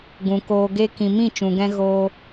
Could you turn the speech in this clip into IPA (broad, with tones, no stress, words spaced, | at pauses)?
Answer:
ɡũ˨koː˧ɡe˦ kĩ˨mĩ˦˨ t͡ʃũ˨ɡɛ̃˦ ɣoː˧